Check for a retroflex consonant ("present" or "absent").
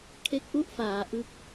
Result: absent